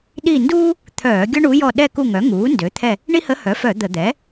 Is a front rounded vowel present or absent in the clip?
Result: present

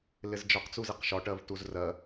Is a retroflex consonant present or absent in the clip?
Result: present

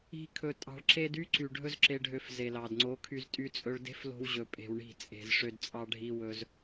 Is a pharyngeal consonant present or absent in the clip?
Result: absent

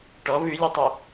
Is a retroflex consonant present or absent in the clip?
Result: present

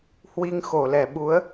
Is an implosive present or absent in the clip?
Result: present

